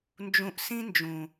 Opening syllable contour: low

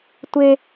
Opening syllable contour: high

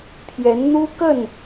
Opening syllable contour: rising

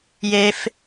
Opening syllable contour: high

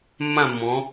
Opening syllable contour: falling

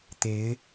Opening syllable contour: rising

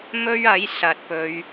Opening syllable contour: high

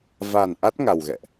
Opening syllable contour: low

